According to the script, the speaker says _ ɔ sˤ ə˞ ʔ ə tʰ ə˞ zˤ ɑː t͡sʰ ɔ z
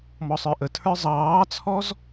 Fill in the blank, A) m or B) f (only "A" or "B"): A